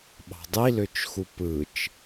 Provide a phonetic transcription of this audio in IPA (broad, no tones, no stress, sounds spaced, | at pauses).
ɓ ɑ̤ dˤ i l ø t͡ʃ x u p ɯ t͡ʃ